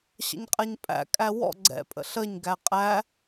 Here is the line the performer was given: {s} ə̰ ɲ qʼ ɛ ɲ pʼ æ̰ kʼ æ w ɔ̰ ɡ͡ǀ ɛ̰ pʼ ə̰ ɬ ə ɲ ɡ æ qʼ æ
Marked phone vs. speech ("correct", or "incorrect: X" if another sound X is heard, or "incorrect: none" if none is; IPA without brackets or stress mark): incorrect: ɕ